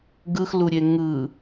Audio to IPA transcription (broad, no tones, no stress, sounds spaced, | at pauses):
ɡ ɯ x l u ɾʲ e ŋ ɯ